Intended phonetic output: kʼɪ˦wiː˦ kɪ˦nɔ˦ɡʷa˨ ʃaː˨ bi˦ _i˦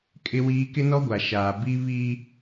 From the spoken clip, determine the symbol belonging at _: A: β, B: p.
A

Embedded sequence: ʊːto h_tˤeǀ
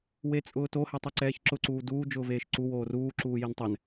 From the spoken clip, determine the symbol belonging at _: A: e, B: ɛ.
B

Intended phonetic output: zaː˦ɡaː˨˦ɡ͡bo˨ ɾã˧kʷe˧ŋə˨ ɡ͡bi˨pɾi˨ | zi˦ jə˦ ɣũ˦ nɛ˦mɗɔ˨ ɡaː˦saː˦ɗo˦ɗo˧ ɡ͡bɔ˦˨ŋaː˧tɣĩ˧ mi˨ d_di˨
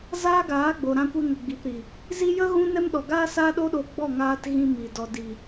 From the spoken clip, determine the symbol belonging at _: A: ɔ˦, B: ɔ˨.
B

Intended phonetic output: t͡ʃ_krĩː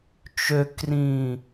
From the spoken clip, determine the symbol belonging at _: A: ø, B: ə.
A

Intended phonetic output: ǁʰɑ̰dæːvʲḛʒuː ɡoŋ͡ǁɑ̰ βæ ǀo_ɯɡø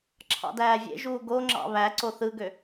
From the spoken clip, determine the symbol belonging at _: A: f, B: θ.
B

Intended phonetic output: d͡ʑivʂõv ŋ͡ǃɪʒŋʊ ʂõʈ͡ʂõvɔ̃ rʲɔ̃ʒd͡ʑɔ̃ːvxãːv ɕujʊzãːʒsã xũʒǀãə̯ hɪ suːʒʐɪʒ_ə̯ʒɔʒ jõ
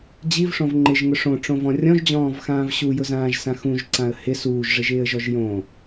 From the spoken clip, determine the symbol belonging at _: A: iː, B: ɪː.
B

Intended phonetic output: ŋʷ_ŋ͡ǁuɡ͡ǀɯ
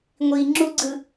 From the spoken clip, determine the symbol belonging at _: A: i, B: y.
A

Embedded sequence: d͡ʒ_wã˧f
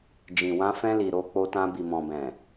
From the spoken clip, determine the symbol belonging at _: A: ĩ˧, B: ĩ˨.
B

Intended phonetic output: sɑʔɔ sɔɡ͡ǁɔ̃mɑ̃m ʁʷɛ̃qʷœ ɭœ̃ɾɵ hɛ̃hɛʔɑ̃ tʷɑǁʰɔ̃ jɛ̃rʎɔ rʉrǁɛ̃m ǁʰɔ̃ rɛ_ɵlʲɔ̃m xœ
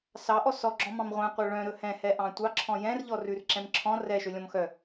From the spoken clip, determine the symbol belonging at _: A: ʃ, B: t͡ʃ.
A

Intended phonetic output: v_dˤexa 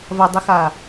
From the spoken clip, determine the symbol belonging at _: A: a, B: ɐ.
B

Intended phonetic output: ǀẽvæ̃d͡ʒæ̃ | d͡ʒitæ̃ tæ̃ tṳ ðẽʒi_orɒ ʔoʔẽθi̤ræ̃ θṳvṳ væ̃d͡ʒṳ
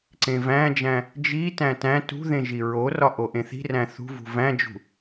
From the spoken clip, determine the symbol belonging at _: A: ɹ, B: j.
A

